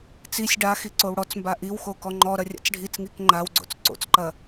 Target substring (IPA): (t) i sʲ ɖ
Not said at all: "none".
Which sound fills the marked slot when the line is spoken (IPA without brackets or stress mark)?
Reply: t͡s